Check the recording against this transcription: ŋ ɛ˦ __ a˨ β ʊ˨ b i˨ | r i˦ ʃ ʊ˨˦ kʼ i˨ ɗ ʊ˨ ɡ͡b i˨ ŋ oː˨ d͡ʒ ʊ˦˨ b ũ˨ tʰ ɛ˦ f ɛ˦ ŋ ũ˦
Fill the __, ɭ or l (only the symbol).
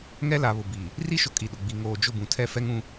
l